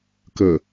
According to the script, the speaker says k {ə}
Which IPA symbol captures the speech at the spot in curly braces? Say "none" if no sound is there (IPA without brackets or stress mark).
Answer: ə